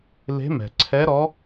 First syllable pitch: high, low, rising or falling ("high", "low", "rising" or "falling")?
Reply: rising